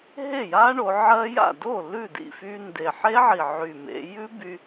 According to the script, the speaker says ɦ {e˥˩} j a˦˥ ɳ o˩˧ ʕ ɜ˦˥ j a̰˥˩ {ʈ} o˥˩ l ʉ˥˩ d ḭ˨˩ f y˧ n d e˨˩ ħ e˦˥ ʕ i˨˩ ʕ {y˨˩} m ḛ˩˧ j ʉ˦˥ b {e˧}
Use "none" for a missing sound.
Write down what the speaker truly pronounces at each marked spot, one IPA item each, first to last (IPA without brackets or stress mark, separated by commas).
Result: e˥˩, d, y˨˩, y˧